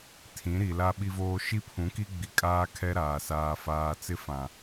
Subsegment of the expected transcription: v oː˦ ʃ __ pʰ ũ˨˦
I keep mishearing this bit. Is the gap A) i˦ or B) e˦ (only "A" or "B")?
A